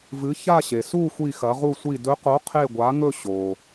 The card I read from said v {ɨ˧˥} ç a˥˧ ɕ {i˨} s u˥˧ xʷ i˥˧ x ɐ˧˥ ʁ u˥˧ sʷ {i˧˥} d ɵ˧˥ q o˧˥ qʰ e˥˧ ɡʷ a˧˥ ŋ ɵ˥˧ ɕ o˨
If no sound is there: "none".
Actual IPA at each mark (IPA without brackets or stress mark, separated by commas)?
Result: ɨ˧˥, e˨, i˥˧